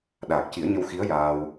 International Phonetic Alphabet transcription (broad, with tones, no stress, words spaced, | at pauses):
ɗaː˨˩k̚ci˨˩˦ə̯ɲə˧wxi˧˥ə̯ jaː˧w